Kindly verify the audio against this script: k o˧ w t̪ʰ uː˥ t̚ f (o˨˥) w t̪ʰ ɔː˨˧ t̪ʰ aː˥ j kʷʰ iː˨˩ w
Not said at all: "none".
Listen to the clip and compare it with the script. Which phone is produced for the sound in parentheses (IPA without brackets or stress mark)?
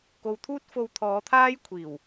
o˧